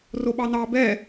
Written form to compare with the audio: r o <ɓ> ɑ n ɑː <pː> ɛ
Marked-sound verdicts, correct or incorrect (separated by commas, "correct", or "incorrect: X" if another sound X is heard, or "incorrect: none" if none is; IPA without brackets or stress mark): correct, incorrect: b